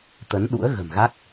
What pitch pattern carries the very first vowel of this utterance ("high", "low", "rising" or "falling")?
rising